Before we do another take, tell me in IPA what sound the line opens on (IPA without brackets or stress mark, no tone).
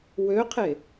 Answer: w